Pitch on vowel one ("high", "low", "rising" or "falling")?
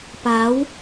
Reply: rising